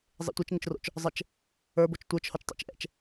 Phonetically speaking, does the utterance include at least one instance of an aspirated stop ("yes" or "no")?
no